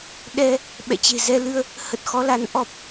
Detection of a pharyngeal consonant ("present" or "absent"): absent